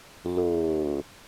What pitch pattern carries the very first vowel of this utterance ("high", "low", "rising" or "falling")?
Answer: low